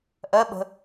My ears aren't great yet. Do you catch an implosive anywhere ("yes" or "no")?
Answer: yes